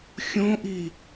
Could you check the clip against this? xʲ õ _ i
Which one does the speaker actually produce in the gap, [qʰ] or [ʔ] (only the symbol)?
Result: ʔ